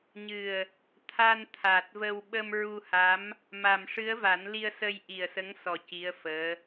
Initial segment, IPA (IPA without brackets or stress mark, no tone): ɲ